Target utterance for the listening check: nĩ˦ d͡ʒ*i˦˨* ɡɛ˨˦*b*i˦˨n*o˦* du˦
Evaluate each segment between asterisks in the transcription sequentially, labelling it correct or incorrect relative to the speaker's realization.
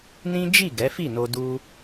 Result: correct, incorrect: f, incorrect: o˧

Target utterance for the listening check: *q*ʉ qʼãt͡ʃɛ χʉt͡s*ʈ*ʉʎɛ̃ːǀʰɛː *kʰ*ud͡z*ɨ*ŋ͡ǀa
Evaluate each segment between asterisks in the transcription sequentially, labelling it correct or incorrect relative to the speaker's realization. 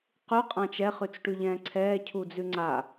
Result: correct, correct, incorrect: cʰ, incorrect: ʉ

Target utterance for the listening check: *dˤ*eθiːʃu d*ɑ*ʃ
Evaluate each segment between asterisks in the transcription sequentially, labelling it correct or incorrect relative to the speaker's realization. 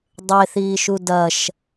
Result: correct, incorrect: ɐ

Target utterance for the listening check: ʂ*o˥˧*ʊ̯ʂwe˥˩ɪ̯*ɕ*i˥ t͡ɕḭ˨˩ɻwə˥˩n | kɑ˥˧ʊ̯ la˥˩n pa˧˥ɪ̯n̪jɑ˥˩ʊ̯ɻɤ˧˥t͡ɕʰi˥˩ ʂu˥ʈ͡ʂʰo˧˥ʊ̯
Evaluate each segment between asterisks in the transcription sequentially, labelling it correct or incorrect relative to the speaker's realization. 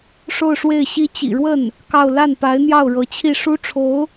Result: correct, correct

